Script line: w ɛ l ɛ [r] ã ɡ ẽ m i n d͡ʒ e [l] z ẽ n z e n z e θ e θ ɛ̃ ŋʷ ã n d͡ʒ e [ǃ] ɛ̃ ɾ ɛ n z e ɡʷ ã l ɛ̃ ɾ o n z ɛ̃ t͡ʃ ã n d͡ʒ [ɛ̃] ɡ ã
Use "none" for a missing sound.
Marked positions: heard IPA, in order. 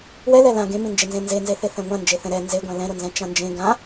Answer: l, n, θ, ẽ

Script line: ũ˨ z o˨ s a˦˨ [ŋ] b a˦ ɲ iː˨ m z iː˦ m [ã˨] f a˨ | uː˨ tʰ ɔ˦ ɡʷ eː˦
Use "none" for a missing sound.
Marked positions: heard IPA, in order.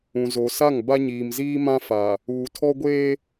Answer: ŋ, ã˦

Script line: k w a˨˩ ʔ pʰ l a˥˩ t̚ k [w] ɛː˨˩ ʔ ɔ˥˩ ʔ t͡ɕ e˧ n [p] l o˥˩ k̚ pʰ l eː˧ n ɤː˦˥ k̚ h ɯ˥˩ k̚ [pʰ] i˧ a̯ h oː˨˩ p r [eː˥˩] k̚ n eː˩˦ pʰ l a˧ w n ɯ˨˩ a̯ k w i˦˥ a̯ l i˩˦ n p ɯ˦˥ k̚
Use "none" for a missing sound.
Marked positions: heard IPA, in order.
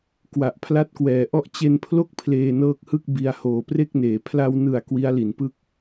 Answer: w, pʰ, b, e˥˩

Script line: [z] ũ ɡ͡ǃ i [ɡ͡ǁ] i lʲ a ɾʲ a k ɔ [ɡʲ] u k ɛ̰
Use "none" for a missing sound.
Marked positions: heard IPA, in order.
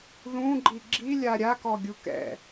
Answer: ð, ɡ͡ǁ, ɡʲ

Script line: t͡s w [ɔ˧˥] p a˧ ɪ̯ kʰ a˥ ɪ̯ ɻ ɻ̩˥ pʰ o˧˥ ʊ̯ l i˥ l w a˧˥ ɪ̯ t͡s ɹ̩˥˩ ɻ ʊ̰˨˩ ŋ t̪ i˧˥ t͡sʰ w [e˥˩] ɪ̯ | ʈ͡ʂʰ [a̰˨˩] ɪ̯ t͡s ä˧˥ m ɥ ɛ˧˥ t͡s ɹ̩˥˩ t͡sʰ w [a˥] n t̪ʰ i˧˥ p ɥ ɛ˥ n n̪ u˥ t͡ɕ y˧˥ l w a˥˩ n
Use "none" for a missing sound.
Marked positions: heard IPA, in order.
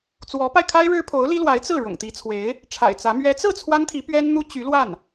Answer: ɔ˧˥, e˧˥, a̰˨˩, a˥

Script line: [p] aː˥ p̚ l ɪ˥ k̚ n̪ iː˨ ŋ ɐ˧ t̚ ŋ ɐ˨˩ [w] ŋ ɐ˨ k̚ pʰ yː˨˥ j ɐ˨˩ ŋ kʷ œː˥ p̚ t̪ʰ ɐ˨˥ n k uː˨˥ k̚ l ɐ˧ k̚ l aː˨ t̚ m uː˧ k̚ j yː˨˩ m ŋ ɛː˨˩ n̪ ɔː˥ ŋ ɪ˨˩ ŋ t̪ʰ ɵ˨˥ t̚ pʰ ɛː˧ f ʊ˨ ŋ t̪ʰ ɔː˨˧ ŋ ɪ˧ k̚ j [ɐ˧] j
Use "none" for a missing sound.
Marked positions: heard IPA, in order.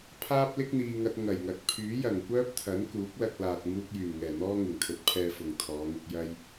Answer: pʰ, j, ɐ˧

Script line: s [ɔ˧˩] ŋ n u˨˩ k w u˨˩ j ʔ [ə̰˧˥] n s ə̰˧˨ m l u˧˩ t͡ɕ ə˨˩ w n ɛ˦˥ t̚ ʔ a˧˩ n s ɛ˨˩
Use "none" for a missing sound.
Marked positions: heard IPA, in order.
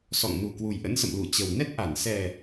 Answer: ɔ̰˧˨, ə̰˧˥

